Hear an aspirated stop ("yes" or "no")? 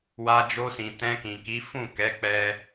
no